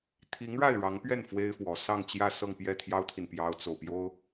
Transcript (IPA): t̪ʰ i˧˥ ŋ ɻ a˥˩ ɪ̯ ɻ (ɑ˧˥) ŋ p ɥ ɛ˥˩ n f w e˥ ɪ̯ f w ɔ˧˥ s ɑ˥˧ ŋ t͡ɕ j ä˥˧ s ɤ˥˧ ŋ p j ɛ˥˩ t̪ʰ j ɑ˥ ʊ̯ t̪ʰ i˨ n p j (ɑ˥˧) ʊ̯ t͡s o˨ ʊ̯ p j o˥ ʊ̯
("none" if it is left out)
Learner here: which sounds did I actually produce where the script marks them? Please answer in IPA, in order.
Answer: ɑ˧˥, ɑ˥

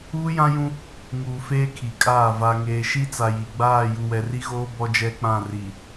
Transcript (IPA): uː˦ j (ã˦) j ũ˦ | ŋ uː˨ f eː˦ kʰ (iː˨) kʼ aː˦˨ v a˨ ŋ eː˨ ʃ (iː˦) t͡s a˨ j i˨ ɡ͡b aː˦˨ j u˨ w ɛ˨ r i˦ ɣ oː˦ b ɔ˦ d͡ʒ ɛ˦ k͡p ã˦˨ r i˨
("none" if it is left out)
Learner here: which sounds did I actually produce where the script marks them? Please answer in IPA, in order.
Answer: ã˦, i˨, i˦

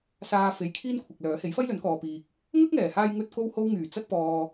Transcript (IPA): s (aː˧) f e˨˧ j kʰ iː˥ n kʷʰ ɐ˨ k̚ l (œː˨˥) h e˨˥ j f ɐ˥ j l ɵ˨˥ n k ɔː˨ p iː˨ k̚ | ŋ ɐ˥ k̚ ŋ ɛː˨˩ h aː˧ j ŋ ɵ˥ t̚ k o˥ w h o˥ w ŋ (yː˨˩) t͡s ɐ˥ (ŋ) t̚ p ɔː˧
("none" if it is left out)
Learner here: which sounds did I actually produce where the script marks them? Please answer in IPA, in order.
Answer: aː˧, œː˨˥, yː˨˩, none

